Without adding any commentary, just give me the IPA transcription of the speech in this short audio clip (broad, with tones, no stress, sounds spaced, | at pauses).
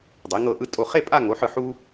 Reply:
dˤ e˩˧ ŋ ɤ˧˩ ʔ ɯ˧ tʼ o˧˩ χ e˥˧ pʼ a˥˧ ŋ o˩˧ ħ ɯ˧˩ ħ u˧